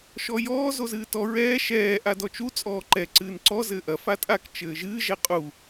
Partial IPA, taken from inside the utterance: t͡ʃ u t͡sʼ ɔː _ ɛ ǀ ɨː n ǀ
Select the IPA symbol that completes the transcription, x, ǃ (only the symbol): ǃ